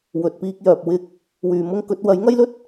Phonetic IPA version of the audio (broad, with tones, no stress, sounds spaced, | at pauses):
w ɵ˨ t̚ p iː˧ k̚ j œː˨ p̚ w ɪ˧ k̚ | w yː˨ m ʊ˥ ŋ k ɵ˨˥ t̚ w ɐ˨˥ j ŋ ɐ˥ j l ɵ˥ t̚